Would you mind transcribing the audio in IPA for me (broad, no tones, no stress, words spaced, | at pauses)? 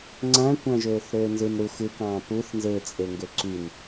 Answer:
ŋ͡ǀæ̃kʷæ̃ʒøːθ ɾøːnzɯn ɾu xɯkɑ̃ː puθ nzet͡sʼe ŋɡøǀyn